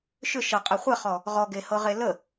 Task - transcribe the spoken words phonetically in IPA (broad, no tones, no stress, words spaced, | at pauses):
ʃʏ ʃɤqʼɛ χʷɛχɔ | ʁɔɡehɤʁe lə